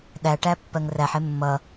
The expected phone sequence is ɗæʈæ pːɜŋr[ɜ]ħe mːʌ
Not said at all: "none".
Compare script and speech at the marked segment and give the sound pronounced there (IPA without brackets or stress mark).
æ